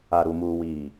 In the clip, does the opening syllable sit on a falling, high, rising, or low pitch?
low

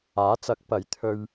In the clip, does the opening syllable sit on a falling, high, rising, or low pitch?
rising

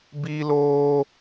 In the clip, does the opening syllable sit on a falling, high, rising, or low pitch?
high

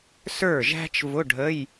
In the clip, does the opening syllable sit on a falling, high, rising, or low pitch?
falling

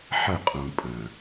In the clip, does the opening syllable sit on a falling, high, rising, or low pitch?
falling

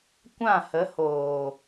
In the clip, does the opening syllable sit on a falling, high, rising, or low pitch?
falling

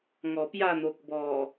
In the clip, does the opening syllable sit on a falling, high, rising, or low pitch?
low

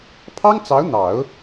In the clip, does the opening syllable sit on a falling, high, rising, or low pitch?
high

